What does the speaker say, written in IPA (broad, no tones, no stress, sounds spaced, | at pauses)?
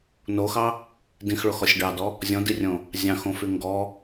n o x ɑ | d ĩ x ɭ o x ɔ sʲ ɖ ɑ d ɔ | zʲ ɔ̃ d i rʲ õ | zʲ ɑ̃ x õ f y ŋ ɡ ɔ